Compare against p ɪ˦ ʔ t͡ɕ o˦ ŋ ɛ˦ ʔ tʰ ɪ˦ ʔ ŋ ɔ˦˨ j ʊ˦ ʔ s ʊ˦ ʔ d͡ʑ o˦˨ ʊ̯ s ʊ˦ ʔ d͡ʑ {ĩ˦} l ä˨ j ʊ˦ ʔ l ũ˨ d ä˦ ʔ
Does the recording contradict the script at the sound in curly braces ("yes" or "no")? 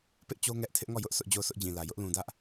yes